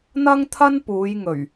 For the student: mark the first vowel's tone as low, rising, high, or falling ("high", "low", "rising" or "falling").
high